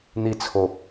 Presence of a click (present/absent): absent